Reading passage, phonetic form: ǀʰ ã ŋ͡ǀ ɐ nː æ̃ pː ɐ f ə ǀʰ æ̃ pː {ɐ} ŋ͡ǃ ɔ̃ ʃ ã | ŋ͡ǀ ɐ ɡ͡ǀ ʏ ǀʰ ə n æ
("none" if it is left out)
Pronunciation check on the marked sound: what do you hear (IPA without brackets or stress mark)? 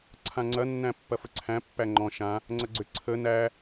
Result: æ